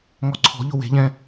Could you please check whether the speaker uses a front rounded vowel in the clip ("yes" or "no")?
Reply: no